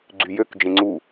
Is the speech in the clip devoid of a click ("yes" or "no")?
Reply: no